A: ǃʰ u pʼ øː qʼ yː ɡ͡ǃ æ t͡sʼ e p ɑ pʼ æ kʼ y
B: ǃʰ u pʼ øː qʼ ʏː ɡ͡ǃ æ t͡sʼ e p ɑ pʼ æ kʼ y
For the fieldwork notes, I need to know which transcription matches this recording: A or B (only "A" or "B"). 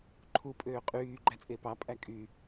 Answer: A